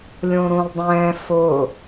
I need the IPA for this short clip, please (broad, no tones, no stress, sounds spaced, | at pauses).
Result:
lʲ õ ɾ ũ lˠ dˤ ɛ̃ː f ʊː